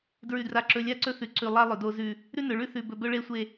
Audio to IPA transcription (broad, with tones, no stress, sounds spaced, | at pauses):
d ɹ ʉ˨ d r a˨ ǁ ɵ˨ lʲ a˦ ǀ ɵ˦ θ ʉ˨ ǀ ʉ˨ lˠ a˦ lˠ ɵ˨ d o˦ z ʉ˦ | ɾ ʉ˦ n ɵ˨ ɭ ʉ˦ θ ʉ˨ b ɵ˨ b ɵ˦ ɭ e˦ sʷ e˦